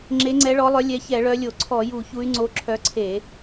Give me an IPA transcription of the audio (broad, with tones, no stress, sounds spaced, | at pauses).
ŋ͡ǁ e˨˦ ŋ͡ǀ ɛ˨˦ ɭ ɔ˨˦ lˠ œ˨˦ lʲ ɛ˨˦ ç ɛ˧˩˧ ɭ œ˨˦ lʲ o˧˩˧ ǀʰ ɔ˧˩˧ j u˧˩˧ ç u˨˦ y̯ ŋ͡ǀ o˨˦ ǁʰ œ˨˦ ǀʰ e˧˩˧